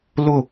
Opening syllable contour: falling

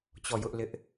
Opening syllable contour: falling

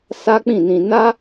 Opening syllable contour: high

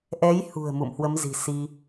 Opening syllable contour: rising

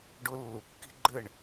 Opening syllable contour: high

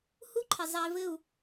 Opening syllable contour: high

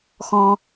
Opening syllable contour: low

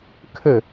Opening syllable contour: falling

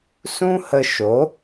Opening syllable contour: high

